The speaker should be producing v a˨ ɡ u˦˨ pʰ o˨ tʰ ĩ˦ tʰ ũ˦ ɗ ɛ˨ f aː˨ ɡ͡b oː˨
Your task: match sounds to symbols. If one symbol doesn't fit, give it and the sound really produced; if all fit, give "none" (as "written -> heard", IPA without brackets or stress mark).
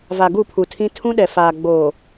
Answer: o˨ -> u˨